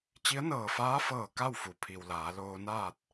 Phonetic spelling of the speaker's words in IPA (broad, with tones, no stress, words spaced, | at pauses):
t͡ɕi˧˥ə̯nɤː˧˩faː˧˥ fɤː˧˩ ka˥˨wfu˩pʰi˩w laː˩˧loː˧naː˥˨t̚